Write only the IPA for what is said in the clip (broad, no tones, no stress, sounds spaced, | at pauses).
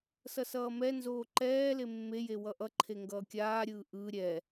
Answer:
s ʌ s ʌː m ɛ n z oː ǃ ɛː l e mː e j e w ʌ ʔ ʌ ǃʰ e ŋ ɡ ʌː kʲ aː ɾʲ ɯː ʔ ɯ ɾʲ ɛ